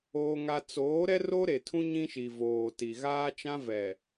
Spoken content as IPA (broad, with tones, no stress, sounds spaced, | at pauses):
oː˦ ŋ a˦ t͡s oː˨˦ ɾ ɛ˦ r o˦ ɾ e˨ tʰ ũ˦ ɲ ĩ˦ ʃ i˨ v oː˨ t i˨ ɣ aː˦ t͡ʃ ã˦ v ɛ˨